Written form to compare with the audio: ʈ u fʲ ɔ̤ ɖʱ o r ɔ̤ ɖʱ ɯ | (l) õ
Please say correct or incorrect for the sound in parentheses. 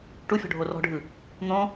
incorrect: n̪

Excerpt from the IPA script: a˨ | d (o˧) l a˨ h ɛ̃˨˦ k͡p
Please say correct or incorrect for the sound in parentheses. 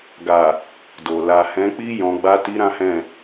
incorrect: o˨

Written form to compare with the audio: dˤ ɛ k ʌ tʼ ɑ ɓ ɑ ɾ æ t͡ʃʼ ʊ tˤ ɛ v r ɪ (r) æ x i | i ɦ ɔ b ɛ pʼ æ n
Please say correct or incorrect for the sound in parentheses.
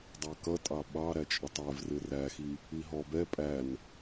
correct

